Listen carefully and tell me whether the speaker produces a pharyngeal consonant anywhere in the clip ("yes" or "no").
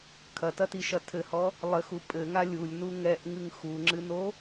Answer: no